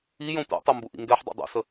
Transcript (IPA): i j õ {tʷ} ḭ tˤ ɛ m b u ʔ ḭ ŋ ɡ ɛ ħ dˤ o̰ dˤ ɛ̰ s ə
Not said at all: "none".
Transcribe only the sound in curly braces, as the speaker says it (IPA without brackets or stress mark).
tʷ